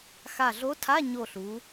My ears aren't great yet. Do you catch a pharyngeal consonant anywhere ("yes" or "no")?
no